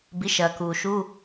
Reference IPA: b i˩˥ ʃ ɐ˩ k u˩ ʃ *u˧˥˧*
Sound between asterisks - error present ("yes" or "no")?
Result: no